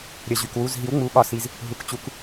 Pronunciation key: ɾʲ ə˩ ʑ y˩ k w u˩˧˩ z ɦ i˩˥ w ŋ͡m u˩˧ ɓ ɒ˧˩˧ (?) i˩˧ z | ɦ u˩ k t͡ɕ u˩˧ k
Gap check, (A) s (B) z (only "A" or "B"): A